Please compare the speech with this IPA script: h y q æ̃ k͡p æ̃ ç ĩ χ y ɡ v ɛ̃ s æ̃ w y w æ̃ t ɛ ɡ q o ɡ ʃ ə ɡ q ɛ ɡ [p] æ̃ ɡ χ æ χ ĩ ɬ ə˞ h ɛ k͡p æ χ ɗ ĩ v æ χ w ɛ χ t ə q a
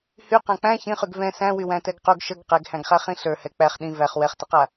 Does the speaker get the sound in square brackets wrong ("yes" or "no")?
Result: yes